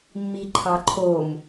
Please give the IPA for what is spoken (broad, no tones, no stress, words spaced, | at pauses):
mːiǃʰɑǃʰom